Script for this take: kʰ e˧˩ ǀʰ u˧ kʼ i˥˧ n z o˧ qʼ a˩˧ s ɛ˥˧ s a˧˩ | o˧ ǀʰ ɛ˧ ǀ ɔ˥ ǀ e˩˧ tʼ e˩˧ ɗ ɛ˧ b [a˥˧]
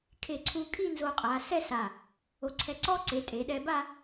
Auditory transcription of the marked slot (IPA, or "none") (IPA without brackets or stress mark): a˥˧